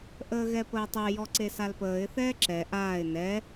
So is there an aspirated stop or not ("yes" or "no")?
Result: no